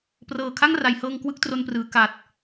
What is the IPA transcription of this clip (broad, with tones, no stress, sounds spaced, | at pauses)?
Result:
p r ɤː˨˩ kʰ a˥˩ ŋ r a˩˦ j h ɤː˧ ŋ k w ɯ˥˩ k̚ t r o˧ n p r ɯː˩˦ k a˨˩ t̚